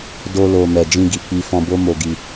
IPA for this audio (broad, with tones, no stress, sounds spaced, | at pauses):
d o˧ l o˨ m ɛ˨ d͡ʒ ĩ˧ ɡ i˨ k͡p i˧ f ɔ̃˧ b o˦ m o˧ ɡ i˧